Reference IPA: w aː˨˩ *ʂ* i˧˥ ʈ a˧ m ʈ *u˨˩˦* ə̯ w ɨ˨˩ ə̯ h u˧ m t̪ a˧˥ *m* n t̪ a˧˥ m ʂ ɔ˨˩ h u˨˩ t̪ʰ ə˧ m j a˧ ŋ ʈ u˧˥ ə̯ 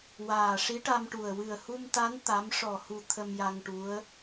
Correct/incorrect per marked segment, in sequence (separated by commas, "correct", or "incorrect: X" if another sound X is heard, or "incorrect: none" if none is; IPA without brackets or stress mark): correct, incorrect: u˨˩, incorrect: none